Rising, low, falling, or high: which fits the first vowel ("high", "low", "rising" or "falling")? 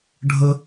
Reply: high